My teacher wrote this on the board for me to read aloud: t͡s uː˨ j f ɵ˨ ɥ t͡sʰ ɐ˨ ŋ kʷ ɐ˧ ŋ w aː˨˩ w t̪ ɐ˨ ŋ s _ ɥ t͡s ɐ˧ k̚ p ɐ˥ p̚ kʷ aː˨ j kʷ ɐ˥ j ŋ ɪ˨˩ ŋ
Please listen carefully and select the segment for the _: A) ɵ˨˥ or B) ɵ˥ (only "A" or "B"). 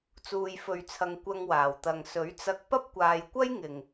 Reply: A